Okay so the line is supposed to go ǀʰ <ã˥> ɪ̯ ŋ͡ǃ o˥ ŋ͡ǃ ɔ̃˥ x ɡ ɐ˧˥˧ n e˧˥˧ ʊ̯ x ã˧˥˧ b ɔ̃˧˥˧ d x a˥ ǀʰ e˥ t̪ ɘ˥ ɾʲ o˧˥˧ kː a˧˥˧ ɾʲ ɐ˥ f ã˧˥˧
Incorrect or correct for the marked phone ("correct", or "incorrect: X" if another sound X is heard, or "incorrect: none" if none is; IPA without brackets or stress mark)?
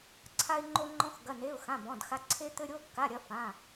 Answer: incorrect: a˥